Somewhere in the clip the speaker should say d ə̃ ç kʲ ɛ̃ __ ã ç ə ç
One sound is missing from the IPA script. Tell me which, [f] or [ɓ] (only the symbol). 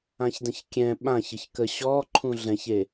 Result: ɓ